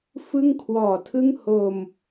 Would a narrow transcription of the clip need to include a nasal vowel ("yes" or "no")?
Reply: no